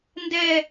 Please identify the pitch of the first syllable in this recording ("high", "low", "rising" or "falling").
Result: falling